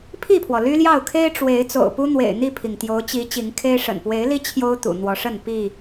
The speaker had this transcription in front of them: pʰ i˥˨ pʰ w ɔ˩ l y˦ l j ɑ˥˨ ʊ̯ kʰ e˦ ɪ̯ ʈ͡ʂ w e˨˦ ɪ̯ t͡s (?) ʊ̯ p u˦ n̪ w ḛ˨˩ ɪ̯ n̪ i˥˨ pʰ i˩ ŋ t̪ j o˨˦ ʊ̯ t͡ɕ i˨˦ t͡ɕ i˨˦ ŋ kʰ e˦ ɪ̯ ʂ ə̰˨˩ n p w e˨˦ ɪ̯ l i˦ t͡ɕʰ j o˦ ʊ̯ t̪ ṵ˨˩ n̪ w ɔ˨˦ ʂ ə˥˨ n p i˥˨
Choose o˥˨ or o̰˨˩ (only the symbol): o̰˨˩